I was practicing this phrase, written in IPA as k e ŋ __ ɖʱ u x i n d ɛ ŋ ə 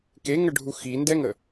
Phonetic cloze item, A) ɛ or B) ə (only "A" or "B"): B